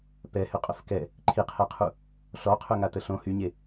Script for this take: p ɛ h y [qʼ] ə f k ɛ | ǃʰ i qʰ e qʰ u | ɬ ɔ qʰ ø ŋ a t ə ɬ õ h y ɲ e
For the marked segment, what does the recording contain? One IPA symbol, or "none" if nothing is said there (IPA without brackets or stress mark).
qʼ